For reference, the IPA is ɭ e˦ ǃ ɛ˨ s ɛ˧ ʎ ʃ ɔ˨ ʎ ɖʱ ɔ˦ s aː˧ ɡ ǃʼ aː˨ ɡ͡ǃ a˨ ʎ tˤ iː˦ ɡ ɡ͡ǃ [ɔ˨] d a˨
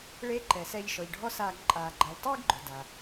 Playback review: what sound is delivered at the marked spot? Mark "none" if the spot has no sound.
ʊ˨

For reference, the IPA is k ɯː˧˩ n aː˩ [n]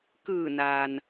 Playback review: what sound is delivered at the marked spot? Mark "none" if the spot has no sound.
n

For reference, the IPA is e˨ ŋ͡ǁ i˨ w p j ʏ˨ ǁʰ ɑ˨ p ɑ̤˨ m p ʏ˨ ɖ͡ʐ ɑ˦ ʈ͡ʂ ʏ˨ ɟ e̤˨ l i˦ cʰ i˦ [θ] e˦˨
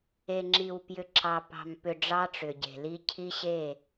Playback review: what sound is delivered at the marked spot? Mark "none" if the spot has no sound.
ɕ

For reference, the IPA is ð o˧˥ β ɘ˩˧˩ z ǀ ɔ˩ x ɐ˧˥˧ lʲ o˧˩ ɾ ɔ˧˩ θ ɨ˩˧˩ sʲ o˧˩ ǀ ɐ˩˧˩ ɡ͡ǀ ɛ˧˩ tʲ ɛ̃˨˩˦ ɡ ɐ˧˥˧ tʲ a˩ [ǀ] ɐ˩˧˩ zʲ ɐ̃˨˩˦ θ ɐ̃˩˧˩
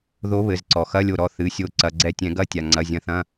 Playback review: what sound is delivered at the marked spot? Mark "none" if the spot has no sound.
ŋ͡ǀ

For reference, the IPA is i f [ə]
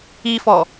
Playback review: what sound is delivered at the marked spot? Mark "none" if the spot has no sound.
ɔ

